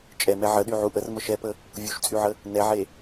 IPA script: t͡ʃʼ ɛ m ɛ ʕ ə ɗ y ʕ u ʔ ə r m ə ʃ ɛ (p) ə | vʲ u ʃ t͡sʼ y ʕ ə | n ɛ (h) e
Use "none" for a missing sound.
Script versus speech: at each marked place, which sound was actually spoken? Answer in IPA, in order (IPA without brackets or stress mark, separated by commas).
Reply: p, ʕ